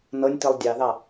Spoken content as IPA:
nɤnʲtilˠ dʲɑðɑ

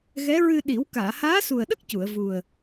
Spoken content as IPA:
ɣɛ˧˥ɹɨ˧ ɗi˨˩˦w kaː˨˩˨haː˧˥su˨˩ə̯ɗə˦˥k̚ cu˨˩˨ə̯ vu˨˩ə̯

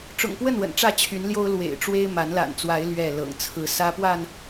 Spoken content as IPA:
ʈ͡ʂʊ̰˨˩ŋpwə˥˨n wə̰˨˩nʈ͡ʂä˥˨t͡ɕʰy˨˦nljo˦ʊ̯ lwḛ˨˩ɪ̯ʈ͡ʂwe˦ɪ̯ma˨˦n la̰˨˩nt͡swa˨˦ɪ̯ lɥɛ˥˨ lɤ̰˨˩ŋt͡sʰɹ̩˥˨ sä˦pwa˥˨n

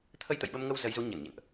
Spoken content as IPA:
t̪ʰə˧jt̪ə̰˧˨jɓə˧mŋə˧w zə˨˦jzu˨˦ ɲə˧˩nɲə̰˧˨nʔ

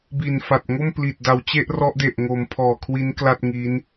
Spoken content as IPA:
bi˨˩nfa˨˩t̚ ŋo˥˩mpli˨˩t̚ da˨˩wt͡ɕe˥˩ʔrɔ˦˥ʔ de˨˩ʔŋo˩˦m pʰɔː˨˩kʰwi˦˥n kla˥˩t̚ŋi˦˥n

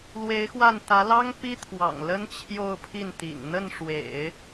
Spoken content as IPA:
lwe˧˥ɪ̯xwa˥˩nt̪ä˧˥ lɑ˥ŋpi˥t̪ʰwɑ̰˨˩ŋ lə˥n t͡ɕʰjo˥˧ʊ̯pʰi˥˩nt̪ḭ˨˩ŋ n̪ə˥˩nʂwḛ˨˩˦ɪ̯

